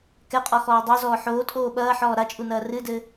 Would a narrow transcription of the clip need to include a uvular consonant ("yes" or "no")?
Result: yes